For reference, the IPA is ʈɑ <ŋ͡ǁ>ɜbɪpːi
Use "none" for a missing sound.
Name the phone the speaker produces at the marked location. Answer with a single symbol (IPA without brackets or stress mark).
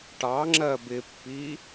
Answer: ŋ͡ǁ